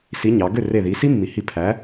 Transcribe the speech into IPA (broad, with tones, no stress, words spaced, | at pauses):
si˨˥ɲɑ˩˧ ɡø˥˩re˧˩ði˩˧ si˦˥mːi˩˧hi˧˩ pʰæ˨˥